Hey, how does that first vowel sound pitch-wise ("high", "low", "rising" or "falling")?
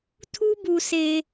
high